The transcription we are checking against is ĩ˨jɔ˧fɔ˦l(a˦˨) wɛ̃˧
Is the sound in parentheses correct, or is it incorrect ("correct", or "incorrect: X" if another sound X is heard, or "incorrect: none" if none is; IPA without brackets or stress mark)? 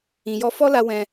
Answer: incorrect: a˧